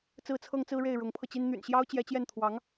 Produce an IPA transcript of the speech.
t͡s ɹ̩˥ t͡sʰ ɤ˥ ŋ t͡s ɹ̩˥ ɻ e˥˩ ɪ̯ ɻ ʊ˧˥ ŋ pʰ ɤ˧ t͡ɕ i˥ n n̪ y̰˨˩ n ɕ j ɑ˥ ʊ̯ t͡ɕ j ɛ˧˥ t͡ɕ j ɛ˥˩ n t̪ʰ w ɑ˧˥ ŋ

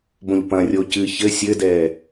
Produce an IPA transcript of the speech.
b õ ʎ p ɐ̃ rʲ o c ɨ ç ɘ sʲ ɘ d ɛː

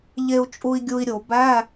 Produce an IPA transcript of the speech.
ʎ e˧ u̯ t͡ʃʼ u˧ i̯ ɡʲ u˧ i̯ ɾʲ o˧˩˧ b æ˧˥˧

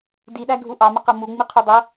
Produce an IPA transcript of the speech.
d i ɗ æ ɡʱ u ʔ ɑ m ə q ɤ m u ŋ͡m i qʰ u dˤ ɤ

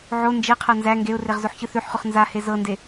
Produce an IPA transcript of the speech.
ʕ o n d͡ʒ e qʰ ɤ n z æ ŋ ɡ e ʊ̯ r e ʁ z o ħ ç ɯ θ ʉ ħ χ ʉ χ n z a h e z ɤ n d e

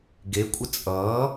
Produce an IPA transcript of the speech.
ɡ e kʷʼ ə t͡sʼ ʌː

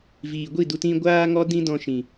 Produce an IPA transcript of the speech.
v iː˨ ɡʷ i˦˨ d u˧ t ĩ˧ ɡʷ aː˦ ŋ ɔ˦ d ĩ˦ d ɔ̃˧ ʃ ĩ˨

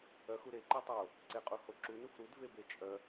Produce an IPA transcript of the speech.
œ x u ɾ e ǃ e tˤ o | ǀ e qʼ u h o ǁ u n u f ɾ u d v e b e t͡ʃʼ œ

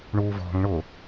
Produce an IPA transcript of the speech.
ɳ uː v ɔ̤ ŋ ɳ ʊ

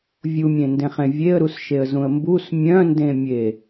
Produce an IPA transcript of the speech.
vʲ u mʲ ẽ n d ẽ χ ẽ vʲ e ə̯ ɾ u s ʃ e ə̯ z ũ ə̯ m b u s mʲ œ̃ n d ẽ mʲ e

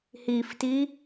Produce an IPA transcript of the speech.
h i f t i

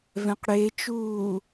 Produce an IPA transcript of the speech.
v ɛ̃ q ɽ e t͡ʃ uː

